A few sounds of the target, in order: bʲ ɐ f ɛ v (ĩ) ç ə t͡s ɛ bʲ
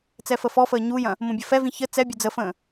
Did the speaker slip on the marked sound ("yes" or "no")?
no